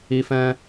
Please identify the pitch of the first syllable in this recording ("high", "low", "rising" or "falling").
high